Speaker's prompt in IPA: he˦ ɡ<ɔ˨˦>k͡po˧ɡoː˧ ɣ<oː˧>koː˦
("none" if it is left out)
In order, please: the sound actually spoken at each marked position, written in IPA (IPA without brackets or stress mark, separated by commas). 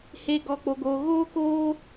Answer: ɔ˧, oː˦